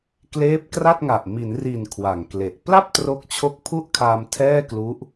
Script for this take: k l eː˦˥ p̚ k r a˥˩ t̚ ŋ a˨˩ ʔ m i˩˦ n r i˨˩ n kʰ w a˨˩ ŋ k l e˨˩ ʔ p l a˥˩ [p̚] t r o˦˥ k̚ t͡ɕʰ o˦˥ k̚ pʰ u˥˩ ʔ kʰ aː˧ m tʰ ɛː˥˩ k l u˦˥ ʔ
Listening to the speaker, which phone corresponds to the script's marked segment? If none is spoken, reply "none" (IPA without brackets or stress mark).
p̚